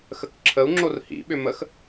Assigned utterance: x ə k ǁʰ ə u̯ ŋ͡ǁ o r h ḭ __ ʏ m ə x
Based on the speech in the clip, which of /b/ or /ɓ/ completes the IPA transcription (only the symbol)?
ɓ